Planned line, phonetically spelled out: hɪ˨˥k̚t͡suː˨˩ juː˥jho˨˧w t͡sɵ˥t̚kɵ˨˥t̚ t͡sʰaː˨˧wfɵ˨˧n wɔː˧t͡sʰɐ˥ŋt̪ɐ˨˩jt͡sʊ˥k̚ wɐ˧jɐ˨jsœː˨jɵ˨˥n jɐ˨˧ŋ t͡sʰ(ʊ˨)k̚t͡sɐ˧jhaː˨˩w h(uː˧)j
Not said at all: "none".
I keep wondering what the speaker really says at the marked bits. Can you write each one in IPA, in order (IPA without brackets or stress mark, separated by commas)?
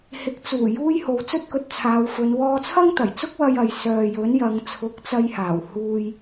ʊ˨˥, uː˧